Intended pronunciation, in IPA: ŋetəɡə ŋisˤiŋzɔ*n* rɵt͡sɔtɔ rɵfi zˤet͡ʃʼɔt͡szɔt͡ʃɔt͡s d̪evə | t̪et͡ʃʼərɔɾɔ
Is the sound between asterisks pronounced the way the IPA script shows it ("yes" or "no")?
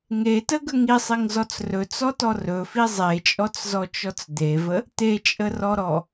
no